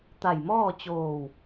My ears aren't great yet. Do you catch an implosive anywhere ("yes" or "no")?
no